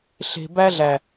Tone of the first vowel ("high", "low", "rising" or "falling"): low